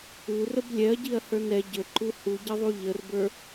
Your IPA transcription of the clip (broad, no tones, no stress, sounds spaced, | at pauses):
u r ə b lʲ ɛ ɐ̯ ɟ i ɐ̯ h ə˞ n ɛ ɟ ə ǃ u h u ɟ ə ðˤ u ʎ ə r b ə˞